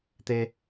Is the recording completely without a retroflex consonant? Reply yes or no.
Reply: yes